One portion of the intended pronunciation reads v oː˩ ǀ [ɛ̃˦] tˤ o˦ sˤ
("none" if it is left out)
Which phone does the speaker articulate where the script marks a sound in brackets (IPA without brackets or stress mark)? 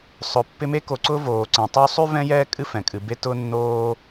ɛ̃˩